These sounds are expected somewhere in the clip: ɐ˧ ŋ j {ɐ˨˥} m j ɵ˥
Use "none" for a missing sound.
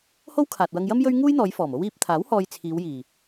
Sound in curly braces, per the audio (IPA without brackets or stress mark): ɐ˥